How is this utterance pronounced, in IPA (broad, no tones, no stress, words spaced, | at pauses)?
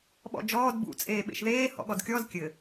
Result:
ɓɔ̰d͡ʒɔːd bṵ t͡sʼeːɓḛʃðeː hɔ̰ɠɔdkʲɔz kʲɘ